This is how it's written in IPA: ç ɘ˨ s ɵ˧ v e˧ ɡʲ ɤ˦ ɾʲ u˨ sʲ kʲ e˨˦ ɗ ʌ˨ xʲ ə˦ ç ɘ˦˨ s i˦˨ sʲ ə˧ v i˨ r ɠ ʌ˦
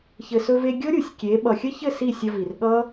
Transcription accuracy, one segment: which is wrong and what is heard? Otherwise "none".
ɗ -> ɓ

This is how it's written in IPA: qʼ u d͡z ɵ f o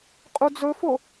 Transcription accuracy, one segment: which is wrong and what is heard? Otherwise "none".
none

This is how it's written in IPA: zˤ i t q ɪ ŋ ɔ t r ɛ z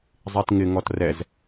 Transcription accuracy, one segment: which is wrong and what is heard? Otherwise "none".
q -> ŋ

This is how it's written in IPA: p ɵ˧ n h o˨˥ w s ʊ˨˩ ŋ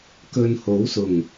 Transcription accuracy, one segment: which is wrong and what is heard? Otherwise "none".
p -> k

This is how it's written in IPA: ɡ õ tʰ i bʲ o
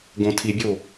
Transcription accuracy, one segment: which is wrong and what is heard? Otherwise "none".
none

